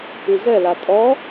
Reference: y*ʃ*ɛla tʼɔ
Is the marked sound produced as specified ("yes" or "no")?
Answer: no